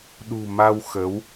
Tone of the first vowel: low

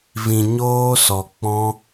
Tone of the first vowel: low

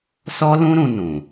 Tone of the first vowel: high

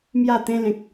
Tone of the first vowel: falling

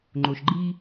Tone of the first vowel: low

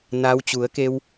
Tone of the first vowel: rising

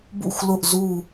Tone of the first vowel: falling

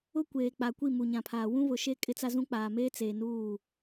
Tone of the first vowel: high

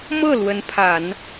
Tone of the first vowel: falling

